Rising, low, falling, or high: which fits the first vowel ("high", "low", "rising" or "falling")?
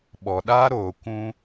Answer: low